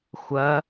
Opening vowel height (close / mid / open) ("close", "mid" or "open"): open